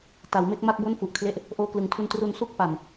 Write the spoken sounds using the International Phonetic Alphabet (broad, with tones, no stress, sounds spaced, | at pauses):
t a˩˦ w m e˥˩ k̚ m a˥˩ k̚ b o˥˩ n f u˨˩ ʔ kʰ l e˦˥ ʔ | ʔ oː˧ k l ɯ˩˦ ŋ tʰ u˧ n t r u˧ n s u˥˩ k̚ p a˨˩ n